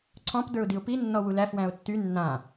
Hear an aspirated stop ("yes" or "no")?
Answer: yes